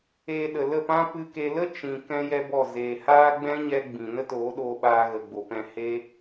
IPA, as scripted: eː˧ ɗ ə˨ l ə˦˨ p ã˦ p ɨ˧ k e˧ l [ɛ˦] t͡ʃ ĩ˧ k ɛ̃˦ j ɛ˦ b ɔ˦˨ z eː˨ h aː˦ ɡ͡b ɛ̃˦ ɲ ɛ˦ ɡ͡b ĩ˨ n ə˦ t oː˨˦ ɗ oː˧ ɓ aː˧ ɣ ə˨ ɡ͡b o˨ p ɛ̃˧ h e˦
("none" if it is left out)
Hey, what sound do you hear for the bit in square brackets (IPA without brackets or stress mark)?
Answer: ə˦